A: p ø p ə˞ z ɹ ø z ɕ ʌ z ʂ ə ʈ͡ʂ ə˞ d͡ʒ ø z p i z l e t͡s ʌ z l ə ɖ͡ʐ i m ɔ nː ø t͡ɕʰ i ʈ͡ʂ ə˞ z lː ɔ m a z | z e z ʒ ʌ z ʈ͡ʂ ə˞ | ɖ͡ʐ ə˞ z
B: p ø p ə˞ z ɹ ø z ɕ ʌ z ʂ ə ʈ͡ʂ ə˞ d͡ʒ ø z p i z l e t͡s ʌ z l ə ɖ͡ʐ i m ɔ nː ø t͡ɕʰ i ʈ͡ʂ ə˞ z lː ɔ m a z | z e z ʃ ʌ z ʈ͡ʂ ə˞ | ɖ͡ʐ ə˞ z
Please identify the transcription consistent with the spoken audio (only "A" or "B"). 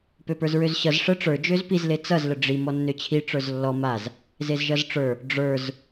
A